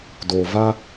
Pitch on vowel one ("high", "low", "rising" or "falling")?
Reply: low